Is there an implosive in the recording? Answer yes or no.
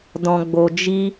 no